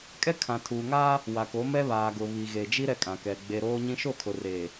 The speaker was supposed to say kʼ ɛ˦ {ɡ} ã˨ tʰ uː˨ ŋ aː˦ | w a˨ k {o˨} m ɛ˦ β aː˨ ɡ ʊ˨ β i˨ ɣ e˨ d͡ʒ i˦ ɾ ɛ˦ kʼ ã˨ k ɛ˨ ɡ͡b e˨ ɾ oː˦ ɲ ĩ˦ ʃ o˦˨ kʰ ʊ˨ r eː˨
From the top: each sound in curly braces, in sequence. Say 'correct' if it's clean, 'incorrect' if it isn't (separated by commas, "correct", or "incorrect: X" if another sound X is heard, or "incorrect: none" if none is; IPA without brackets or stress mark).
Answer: incorrect: kʰ, incorrect: o˨˦